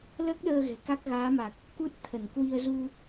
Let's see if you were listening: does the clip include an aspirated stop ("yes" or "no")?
yes